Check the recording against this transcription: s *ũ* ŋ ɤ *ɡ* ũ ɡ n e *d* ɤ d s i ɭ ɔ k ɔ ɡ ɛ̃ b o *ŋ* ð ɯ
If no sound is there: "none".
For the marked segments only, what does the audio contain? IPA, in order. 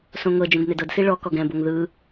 õ, d͡ʒ, d, ŋ

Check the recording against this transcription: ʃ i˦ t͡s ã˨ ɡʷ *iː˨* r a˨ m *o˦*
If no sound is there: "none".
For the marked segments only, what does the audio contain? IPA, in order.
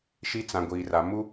iː˨, u˦

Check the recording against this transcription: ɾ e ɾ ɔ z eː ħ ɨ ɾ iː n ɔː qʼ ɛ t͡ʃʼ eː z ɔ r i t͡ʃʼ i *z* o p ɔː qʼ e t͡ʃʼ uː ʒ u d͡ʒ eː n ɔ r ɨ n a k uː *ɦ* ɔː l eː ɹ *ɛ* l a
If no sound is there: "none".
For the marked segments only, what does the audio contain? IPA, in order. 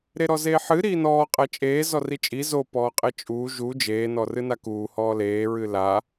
z, h, ɨ

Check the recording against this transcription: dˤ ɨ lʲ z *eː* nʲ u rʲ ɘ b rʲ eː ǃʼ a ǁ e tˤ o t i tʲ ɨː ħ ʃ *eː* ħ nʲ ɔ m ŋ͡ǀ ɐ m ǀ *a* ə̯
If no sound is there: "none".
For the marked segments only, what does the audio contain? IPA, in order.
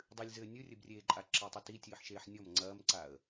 ɘː, eː, a

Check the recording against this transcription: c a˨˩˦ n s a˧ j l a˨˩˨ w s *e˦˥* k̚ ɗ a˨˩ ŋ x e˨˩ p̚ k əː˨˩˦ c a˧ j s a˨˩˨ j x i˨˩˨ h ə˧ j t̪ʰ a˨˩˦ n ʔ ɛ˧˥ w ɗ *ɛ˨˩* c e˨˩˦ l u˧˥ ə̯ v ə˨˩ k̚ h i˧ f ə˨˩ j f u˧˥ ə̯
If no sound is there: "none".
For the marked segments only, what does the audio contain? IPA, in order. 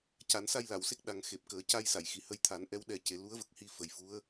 e˦˥, ɛ˧

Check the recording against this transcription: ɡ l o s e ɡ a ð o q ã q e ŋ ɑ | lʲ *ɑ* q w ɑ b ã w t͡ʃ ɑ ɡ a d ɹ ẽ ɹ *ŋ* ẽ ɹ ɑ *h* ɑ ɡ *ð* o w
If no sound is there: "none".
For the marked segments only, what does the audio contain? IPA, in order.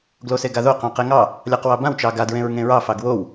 ɑ, ŋ, f, w

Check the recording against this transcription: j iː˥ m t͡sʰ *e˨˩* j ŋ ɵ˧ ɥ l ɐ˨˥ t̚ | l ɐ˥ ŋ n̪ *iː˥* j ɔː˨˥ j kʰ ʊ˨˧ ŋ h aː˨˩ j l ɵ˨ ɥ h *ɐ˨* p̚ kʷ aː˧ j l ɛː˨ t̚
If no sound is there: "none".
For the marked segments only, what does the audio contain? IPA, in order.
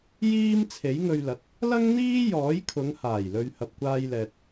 e˨˥, iː˥, ɐ˨

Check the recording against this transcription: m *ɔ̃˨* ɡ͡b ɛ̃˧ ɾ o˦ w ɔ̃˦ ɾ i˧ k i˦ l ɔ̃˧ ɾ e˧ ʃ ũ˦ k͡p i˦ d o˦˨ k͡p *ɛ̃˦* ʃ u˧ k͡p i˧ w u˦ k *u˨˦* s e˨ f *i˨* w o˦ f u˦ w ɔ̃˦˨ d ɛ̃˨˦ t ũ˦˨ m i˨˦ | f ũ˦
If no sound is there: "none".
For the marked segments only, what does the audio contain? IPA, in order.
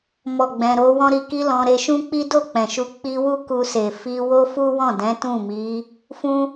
ɔ˨, ɛ̃˨, u˧, i˧

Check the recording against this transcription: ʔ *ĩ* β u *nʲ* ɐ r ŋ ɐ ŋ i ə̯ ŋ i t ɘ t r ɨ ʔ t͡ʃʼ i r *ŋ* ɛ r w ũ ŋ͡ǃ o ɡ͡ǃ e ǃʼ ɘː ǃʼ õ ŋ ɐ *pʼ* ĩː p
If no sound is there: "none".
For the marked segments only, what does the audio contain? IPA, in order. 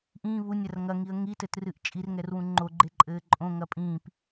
ĩː, nʲ, ŋ, pʼ

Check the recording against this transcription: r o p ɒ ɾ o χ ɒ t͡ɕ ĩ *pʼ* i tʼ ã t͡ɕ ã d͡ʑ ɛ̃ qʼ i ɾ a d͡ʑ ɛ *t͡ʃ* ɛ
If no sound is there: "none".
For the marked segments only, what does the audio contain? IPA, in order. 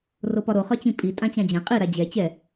pʼ, t͡ɕ

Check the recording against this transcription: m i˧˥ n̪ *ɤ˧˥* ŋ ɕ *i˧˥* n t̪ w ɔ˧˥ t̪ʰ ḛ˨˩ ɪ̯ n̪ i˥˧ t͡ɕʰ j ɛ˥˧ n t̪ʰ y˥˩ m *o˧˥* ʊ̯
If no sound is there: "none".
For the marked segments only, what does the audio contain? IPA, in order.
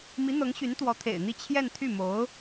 ɤ˧˥, y˧˥, o˧˥

